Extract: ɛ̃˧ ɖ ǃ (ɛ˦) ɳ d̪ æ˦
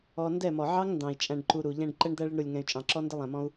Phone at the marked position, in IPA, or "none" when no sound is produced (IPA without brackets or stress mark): ɛ˦